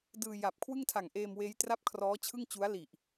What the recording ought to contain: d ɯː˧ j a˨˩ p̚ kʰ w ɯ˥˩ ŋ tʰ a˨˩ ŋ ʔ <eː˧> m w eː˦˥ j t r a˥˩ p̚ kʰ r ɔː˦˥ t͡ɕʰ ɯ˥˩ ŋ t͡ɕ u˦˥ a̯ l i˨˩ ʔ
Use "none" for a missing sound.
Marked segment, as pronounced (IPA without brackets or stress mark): eː˧